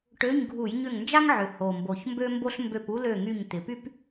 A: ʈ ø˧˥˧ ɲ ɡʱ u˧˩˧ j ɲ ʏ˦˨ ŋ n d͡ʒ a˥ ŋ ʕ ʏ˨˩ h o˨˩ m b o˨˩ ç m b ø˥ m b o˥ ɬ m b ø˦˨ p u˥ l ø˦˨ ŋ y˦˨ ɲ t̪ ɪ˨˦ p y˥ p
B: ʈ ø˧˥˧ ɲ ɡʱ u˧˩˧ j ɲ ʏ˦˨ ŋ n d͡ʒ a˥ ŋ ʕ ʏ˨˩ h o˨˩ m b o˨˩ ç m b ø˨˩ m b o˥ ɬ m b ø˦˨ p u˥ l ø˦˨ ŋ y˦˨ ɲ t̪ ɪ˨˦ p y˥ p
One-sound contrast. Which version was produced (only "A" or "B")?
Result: A